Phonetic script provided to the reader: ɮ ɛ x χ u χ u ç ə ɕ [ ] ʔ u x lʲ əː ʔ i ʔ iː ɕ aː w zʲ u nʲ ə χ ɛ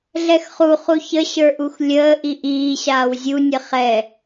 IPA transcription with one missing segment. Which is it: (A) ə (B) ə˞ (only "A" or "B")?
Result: B